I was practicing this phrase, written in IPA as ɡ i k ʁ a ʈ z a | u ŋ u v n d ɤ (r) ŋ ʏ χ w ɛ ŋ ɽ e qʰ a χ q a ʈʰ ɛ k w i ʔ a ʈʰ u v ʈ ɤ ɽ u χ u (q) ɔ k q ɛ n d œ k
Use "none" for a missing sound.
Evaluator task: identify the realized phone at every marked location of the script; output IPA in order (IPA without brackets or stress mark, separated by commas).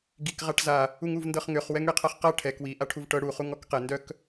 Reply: χ, ŋ